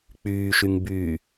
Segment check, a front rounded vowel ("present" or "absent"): present